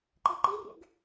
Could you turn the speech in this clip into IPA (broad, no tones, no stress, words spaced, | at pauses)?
ǃeǃirʲḛɡ